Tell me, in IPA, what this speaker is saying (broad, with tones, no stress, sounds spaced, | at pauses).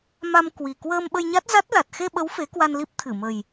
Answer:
m a˧ m k w i˨˩ k w əː˧ m ɓ ə˧ j ɲ a˦˥ t̚ z a˦˥ t̚ l a˨˩ t̚ x e˧ ɓ ə˨˦ w f e˨˦ k w a˧ n l i˦˥ p̚ t̪ʰ ɨ˧˩ m ə˨˩ j